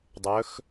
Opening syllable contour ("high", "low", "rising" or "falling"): rising